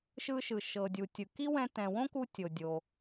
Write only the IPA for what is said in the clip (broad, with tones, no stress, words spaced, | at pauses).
ʃɯ˧ʃɯ˩ ʃɤ˩dʲu˩tʲɯ˩ ki˥ wɛ̃˧tɛ̃˩wõ˥ku˧ tʲo˩dʲo˩